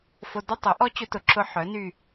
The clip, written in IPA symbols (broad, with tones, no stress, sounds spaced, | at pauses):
f o˧ d ʊ˦ tˤ œ˨˦ ʔ ɔ˦ t͡ɕ ʊ˧ t ʊ˨ ǁ ʊ˧ ħ œ˨˦ n y˦˨